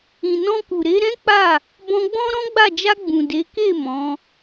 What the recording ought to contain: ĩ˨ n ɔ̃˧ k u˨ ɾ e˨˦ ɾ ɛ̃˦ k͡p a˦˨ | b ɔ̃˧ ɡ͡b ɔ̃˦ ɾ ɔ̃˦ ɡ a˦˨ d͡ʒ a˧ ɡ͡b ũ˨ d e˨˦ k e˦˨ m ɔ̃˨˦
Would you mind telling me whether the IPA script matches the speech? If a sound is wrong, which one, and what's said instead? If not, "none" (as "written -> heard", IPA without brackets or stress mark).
ɡ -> ɡ͡b